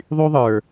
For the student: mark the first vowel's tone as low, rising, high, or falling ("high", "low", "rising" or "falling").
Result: high